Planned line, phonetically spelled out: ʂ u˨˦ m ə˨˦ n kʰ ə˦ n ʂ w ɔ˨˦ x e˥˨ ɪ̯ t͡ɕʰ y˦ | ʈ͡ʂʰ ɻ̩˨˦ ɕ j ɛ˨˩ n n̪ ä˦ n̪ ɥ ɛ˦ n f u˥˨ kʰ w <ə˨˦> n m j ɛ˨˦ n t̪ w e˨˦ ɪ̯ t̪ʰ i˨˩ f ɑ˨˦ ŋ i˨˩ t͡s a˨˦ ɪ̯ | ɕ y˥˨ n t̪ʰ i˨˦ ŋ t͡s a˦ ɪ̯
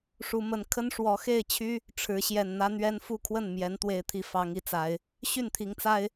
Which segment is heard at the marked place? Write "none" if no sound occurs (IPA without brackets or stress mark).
ə˥˨